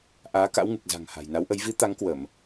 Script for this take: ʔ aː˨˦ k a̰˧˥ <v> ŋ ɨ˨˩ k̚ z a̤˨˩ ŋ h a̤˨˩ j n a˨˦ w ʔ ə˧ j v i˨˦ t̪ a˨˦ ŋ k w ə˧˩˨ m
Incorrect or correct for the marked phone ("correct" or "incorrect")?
incorrect